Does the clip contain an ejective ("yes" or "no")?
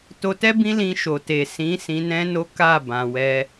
no